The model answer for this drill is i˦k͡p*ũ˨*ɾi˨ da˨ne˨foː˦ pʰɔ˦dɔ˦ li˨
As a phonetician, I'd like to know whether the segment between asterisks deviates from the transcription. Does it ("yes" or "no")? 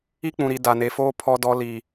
no